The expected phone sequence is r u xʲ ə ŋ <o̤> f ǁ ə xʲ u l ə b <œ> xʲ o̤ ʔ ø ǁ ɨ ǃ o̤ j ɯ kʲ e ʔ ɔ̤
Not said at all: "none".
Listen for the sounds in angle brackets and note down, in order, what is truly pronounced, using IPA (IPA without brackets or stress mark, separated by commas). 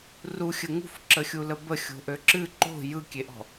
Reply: ṳ, ə